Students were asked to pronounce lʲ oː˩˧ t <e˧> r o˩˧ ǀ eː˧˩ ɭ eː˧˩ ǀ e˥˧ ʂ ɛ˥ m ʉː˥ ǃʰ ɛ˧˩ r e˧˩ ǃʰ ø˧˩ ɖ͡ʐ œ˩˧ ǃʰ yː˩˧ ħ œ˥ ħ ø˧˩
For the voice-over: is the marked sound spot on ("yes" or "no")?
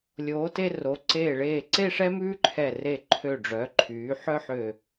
yes